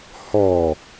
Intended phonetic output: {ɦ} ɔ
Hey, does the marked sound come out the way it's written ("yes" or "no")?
no